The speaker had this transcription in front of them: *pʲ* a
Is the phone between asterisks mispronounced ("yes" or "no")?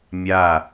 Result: yes